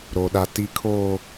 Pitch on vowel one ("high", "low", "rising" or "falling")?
low